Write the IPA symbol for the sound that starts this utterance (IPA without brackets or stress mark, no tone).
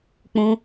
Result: k͡p